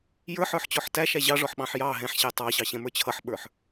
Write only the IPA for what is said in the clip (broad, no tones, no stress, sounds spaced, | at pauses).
j ə˞ ħ ə˞ ħ t͡ɕ ɔ ħ t æ ʃ æ ʑ ɑ ʐ ɔ ħ ɓ ɑ̃ ħ j ɑ ɦ ɛ̃ ħ ɕ æ tˤ ɑ ɕ ɑ ɕ ɛ̃ m ə˞ t͡ɕʰ ʌ ħ ɓ ə˞ ħ